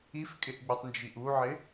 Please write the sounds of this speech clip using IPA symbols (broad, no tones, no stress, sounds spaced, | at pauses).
i f kʼ ɪ ʔ ɡ͡b u tˤ n d͡ʒ i ʔ u ʕ ɪ